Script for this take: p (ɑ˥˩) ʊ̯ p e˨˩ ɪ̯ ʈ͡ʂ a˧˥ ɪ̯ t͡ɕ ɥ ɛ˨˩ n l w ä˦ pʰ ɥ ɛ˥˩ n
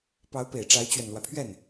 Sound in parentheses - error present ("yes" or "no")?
yes